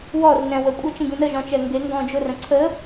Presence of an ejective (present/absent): present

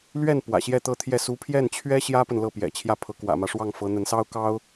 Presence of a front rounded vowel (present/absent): absent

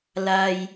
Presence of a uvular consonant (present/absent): absent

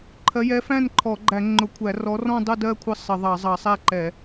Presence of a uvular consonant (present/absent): absent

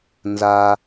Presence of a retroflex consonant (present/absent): absent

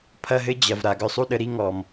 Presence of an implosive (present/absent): present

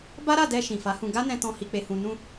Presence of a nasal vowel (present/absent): present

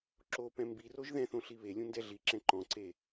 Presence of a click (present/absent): present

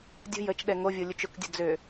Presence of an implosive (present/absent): present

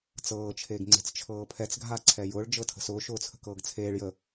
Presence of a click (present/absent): present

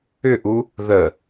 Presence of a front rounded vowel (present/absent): present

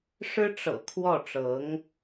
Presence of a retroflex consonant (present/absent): present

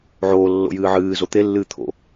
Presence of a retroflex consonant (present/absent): absent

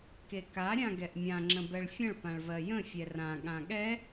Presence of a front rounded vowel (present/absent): absent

